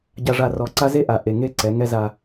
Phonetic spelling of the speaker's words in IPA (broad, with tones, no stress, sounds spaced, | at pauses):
ɟ a˨ ʐ a˨ r ɔ˨ ǀ a˦ z e˦ ʔ a˨ ʔ e˨ ŋ e˦ ǀ ɛ˨˦ ŋ ɛ˦ z a˦